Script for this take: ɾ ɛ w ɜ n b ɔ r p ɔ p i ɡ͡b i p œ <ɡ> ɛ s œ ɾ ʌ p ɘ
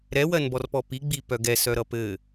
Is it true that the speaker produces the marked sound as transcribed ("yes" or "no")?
yes